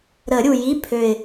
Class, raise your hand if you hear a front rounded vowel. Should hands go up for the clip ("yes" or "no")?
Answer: yes